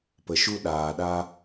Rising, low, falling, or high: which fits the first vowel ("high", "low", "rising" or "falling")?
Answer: low